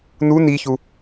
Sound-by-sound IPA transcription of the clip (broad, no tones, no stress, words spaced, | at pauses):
nu niçu